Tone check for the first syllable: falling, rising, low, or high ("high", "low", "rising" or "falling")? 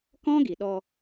high